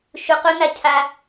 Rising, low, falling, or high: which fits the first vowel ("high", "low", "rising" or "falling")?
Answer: low